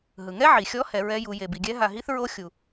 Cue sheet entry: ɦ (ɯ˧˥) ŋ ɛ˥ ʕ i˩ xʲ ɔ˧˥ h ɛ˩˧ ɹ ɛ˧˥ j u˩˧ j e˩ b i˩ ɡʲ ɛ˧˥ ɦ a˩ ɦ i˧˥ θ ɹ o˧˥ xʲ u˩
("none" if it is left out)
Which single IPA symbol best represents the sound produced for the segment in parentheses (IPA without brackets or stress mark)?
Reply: ɯ˩